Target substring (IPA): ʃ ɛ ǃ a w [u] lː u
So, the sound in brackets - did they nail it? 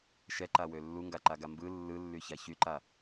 no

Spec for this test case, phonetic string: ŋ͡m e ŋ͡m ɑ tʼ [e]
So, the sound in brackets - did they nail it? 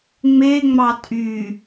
no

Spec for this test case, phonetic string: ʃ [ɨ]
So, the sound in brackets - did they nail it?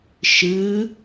yes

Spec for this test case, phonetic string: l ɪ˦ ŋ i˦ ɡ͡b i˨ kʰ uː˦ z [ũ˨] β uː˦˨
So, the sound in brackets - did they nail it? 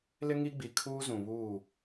yes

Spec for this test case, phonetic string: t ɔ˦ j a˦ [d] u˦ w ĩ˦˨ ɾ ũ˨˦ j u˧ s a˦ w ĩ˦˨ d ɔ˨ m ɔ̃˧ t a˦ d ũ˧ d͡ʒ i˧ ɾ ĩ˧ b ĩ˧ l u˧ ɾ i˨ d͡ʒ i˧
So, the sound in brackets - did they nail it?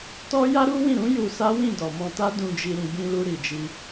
no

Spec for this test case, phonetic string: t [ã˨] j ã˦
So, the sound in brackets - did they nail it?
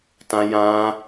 no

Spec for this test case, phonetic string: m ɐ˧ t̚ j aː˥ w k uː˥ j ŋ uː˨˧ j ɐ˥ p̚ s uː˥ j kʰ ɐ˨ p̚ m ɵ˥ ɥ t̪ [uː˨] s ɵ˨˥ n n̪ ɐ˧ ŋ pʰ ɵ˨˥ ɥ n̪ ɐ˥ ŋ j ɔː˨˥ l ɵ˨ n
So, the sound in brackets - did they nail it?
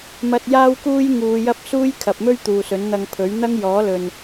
yes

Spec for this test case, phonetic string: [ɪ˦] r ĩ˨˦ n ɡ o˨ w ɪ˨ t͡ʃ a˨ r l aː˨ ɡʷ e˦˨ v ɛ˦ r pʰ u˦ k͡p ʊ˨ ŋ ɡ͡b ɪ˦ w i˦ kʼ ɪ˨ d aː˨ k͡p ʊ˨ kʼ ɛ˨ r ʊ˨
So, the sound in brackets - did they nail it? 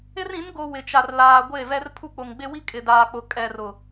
yes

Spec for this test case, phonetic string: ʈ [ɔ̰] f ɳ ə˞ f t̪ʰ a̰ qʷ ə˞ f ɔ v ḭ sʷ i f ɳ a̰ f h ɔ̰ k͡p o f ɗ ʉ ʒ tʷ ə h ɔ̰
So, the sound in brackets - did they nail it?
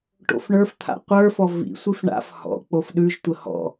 no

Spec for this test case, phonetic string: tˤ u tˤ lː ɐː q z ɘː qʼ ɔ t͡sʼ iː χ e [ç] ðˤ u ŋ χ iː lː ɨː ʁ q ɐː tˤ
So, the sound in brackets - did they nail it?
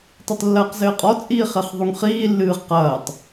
no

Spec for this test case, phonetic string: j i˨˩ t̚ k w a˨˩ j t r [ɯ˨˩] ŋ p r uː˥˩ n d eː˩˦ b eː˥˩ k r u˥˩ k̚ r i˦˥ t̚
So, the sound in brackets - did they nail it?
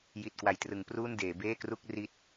no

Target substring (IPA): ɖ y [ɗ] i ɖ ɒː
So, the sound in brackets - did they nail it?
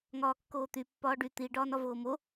no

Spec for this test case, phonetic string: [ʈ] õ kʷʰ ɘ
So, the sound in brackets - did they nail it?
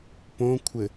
no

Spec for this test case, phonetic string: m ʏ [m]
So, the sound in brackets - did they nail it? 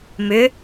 no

